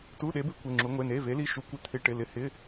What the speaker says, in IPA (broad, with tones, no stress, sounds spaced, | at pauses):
t u˧˥˧ ɗ e˧˥ b ɪ˧˥ kʷ e˧˥˧ ŋ͡ǁ u˧˥ ŋʷ e˧˥˧ n e˧˥˧ v e˧˥ l i˧˥˧ ʃ u˧˥ kʷ ɪ˧˥ t̪ʰ ɪ˧˥˧ ʈ ɪ˧˥˧ l ɪ˧˥ h ɪ˧˥˧